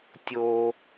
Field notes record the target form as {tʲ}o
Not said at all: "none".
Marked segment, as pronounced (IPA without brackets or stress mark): tʲ